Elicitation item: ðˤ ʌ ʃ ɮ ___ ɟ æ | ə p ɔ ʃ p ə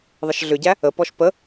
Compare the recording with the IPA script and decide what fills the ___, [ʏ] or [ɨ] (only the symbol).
ʏ